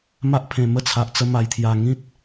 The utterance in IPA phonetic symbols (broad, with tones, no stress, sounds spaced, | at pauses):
m a˦ ʔ pʰ ẽ˨˩ m ə˥˧ t͡sʰ a˨ ʔ t͡s ə˧ m a˨˩ j t̪ʰ j a˨˩ ŋ ĩ˦ t̚